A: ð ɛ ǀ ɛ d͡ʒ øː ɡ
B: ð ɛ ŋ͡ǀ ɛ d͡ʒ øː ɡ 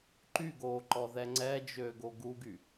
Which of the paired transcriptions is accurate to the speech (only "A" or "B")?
B